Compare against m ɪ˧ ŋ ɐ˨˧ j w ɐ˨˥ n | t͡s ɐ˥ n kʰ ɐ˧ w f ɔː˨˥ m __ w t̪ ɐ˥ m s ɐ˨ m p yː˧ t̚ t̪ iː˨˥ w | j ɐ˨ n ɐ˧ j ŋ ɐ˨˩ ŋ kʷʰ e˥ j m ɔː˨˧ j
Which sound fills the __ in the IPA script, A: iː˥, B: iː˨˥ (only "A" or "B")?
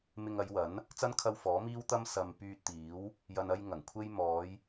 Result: A